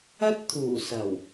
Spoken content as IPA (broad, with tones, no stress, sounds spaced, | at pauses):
ɐ˥ t̚ t̪ʰ uː˨˩ s ɐ˨˩ w